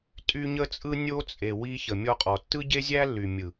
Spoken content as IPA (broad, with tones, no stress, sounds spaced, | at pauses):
tʼ y˦ ɲ ə˦ t͡sʼ ɯ˦ nʲ o˦ t͡sʼ e˨ w i˧ ç ə˨ mʲ ɔ˧ qʼ ɔ˨ tː ɯ˦ ɟ e˦ zʲ æ˦ lː y˨ mʲ ɯ˨